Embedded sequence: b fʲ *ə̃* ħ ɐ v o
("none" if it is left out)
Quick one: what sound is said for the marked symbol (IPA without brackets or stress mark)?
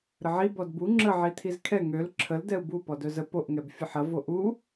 ə